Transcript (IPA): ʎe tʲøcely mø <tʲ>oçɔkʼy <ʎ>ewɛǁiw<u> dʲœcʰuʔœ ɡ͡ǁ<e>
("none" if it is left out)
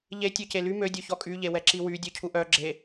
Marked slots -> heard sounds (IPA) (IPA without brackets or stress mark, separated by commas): dʲ, ʎ, y, e